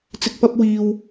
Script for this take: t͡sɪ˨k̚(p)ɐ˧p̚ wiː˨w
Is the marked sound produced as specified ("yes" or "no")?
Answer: yes